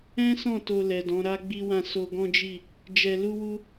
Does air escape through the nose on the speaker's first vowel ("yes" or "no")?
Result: yes